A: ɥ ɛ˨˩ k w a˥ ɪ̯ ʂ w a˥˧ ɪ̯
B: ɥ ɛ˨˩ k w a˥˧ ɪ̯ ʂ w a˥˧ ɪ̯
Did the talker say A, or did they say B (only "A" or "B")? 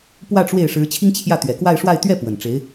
B